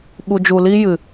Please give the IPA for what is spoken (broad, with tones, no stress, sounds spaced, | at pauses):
ɓ u˨ d͡ʒ u˨ l i˦ j ɨ˨